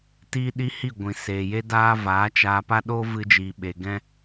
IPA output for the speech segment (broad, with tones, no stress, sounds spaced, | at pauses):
t iː˦ ɗ i˦ h i˦˨ ɡʷ ĩ˨ s eː˨ j e˦ d aː˦ v aː˨˦ t͡ʃ aː˧ p a˦ ɗ oː˦ v ɨ˧ d͡ʒ iː˨ ɓ e˨ ɡ ɛ̃˦